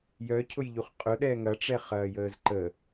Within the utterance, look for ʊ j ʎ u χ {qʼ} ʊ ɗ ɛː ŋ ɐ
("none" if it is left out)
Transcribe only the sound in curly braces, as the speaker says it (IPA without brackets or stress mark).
qʼ